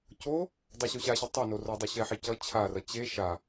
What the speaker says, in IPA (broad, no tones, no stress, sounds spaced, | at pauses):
c o | dˤ a ɕ u ɕ a ɕ e tˤ a n o r o dˤ u ɕ ɛ ħ e c ʌ t͡ɕʰ a r ʌ t͡ɕ e ʃ a